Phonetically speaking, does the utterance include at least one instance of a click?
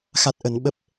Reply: no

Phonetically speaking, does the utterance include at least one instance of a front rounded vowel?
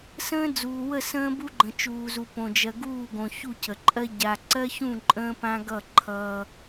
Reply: no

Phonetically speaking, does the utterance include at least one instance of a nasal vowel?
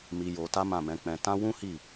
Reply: yes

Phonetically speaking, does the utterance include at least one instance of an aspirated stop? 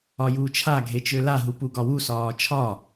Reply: yes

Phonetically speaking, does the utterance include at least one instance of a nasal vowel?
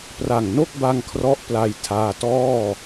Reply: no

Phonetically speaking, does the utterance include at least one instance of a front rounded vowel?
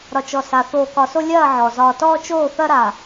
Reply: no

